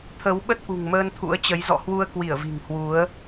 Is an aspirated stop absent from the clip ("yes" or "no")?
no